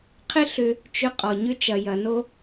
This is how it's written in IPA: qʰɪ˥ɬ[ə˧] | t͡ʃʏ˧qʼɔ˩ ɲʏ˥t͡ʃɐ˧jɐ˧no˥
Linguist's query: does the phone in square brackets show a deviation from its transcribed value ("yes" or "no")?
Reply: yes